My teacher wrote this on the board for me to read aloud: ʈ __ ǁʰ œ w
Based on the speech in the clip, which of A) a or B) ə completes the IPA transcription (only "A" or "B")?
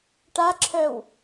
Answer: A